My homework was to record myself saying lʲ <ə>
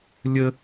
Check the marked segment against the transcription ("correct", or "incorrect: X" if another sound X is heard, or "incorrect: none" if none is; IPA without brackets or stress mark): correct